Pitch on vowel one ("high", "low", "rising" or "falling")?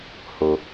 low